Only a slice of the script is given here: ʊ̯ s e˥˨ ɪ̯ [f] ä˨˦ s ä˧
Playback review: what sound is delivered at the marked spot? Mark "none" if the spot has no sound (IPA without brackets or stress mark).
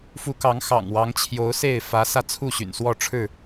f